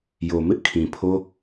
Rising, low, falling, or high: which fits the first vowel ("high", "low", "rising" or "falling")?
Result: low